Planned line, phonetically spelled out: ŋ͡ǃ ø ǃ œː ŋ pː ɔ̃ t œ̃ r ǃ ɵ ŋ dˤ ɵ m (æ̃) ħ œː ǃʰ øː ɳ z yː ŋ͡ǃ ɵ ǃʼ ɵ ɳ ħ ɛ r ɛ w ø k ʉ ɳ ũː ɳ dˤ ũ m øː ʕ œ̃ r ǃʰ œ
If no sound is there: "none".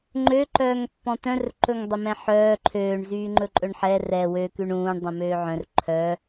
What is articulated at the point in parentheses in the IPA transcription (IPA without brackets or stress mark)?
ɛ̃